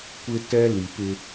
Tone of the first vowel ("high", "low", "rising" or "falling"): high